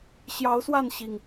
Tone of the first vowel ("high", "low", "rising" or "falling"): rising